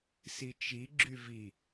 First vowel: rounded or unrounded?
unrounded